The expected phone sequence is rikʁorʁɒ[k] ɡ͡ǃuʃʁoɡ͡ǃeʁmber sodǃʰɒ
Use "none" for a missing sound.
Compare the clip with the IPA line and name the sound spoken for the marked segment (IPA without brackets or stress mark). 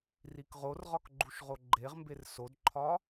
k